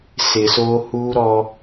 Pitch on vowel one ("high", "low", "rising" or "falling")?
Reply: low